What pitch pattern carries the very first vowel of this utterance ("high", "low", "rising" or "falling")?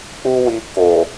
high